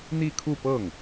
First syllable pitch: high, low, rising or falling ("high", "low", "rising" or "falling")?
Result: falling